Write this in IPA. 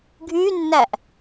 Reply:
ɡʱ y nː æ ʔ

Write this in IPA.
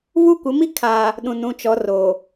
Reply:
β u˦ kʷ ɪ˨˦ m i˦ kʰ aː˨ | ɗ ũ˨ n ũ˦˨ t͡ʃ ɔ˨˦ r oː˨

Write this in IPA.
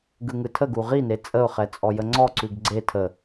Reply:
ɡ ɯ ŋ ɯ tʰ ə ɡ u ʁ i n e t͡sʼ ə ʊ̯ χ ɛ t͡sʼ ɔ j ə ŋ͡ǀ ɔ ǀ ʉ ɡ ɡ͡ǀ e tʰ ə

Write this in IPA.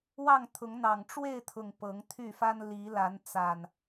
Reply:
w ɑ˥˨ ŋ t̪ʰ ʊ˨˦ ŋ n̪ ɑ˨˩ ŋ ʈ͡ʂ w e˥˨ ɪ̯ t̪ʰ ʊ˨˩ ŋ p ɤ˨˦ ŋ t̪ʰ y˥˨ f a˦ n l i˨˦ l a˨˦ n t͡s a˨˩ n

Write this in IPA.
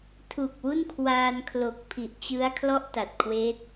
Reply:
tʰ u˨˩ k̚ w u˥˩ n kʰ w aː˧ n kʰ l o˨˩ k̚ pʰ i˨˩ ʔ t͡ɕ ɯ˦˥ a̯ kʰ l ɔ˥˩ ʔ t a˨˩ t̚ kʰ w eː˦˥ t̚

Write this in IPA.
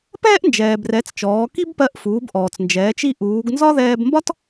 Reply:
p ɛː˥ ʔ n d͡ʒ ɛː˩ b r ɛ˩˧ t͡s t͡ʃ ɔː˩˧ k i˥ b p ɜ˧˥ ʔ f uː˩˧ b ʔ ɔː˩ t͡s n d͡ʒ ɛː˩˧ t͡ʃ i˧ ʔ uː˩˧ ɡ n z ɒ˥ ð ɛː˧ b m b ɒ˥ t

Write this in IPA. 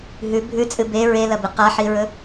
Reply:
ɦ ʉ bʱ ʉ t͡sʼ ɨ b e ɹ e l ɐ b ɨ q a ħ i ɹ ɵ

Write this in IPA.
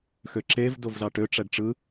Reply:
x ø ǁ e v d o v z ɑ ʈ ø ʈ͡ʂ æ ɖ ʈ͡ʂ ɯ

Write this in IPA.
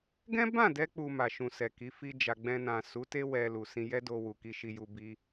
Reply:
ɡ ɛ̃˦ b ã˦˨ d ɛ˧ k͡p u˨ m a˨ ʃ ũ˨ s ɛ˨ k i˨˦ f i˦ d͡ʒ a˧ ɡ͡b ɛ̃˧ n ã˨ s u˨˦ t e˦ w ɛ˦ l u˧ s ĩ˦ j ɛ˦ d o˧ w u˨ k i˧ ʃ i˧ j u˧ b i˦

